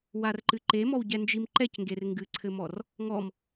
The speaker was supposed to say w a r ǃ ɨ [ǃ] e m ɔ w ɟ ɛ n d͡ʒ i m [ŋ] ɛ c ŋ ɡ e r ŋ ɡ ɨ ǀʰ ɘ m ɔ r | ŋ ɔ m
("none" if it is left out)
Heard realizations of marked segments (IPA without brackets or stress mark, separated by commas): ǃ, ǃ